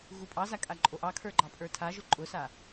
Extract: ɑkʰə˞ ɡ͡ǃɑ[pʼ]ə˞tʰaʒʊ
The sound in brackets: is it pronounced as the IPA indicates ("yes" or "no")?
yes